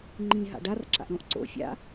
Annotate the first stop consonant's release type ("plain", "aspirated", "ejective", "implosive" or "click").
click